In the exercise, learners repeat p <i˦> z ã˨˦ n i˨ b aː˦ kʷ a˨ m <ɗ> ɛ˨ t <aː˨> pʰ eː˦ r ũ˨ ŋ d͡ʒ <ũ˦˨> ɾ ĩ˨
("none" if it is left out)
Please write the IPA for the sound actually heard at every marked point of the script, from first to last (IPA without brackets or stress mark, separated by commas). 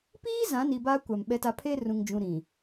iː˦, ɓ, a˨, ũ˨